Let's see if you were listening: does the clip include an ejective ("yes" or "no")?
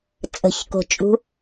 yes